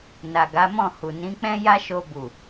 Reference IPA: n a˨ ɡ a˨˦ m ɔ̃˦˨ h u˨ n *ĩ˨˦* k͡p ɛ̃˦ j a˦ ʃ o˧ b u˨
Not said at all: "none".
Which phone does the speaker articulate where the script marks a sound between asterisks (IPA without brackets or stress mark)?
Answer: ĩ˨˦